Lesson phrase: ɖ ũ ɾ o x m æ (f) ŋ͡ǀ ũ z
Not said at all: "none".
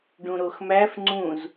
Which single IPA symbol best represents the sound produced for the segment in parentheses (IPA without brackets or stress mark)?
f